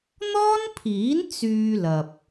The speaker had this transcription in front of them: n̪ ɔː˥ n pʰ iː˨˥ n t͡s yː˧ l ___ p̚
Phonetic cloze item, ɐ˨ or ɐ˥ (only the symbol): ɐ˨